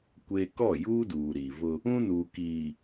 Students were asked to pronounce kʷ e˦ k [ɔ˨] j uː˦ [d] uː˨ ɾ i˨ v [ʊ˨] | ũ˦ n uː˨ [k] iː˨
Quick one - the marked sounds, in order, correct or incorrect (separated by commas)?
incorrect, correct, incorrect, correct